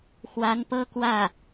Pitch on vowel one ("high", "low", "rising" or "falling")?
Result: rising